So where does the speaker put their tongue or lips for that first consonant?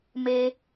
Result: lips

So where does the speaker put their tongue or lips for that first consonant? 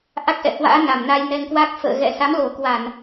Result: throat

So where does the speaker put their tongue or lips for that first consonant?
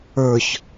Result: palate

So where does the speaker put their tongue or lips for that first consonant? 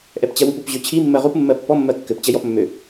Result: throat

